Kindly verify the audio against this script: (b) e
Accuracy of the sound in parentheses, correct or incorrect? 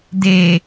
incorrect